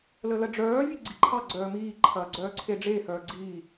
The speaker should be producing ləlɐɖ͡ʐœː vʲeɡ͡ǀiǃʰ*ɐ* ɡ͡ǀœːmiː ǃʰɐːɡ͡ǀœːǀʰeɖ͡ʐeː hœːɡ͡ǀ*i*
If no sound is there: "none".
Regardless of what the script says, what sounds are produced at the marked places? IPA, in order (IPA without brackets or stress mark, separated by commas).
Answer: ɑ, iː